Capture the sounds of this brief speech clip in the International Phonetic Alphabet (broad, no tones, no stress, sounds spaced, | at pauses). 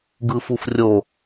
ɡ ɯ f u f rʲ o